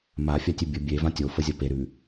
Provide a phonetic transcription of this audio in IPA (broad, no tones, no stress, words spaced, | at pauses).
mafʲatʲʉ bʲə bʲevã tʲofəzʲɐ peɾʉ